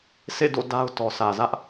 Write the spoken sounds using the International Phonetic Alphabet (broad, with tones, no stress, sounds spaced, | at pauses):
sʰ ḛ˦˨ d o̰˦˨ d a˦ ʊ̯ t ɔ˨ sʰ ä˨ z ä˦ ʔ